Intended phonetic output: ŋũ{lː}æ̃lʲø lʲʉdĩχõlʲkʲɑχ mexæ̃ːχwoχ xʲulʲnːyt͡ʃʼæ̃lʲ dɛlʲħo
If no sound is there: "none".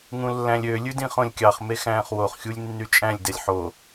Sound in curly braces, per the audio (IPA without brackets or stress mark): lː